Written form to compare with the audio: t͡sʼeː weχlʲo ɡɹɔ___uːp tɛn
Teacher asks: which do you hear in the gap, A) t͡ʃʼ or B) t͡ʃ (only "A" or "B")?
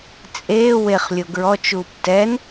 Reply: B